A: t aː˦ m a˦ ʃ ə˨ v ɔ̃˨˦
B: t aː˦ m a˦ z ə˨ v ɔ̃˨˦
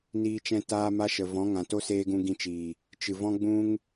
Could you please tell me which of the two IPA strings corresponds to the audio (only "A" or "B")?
A